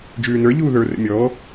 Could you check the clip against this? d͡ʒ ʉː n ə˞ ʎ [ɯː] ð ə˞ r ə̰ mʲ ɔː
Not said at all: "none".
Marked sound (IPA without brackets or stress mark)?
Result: uː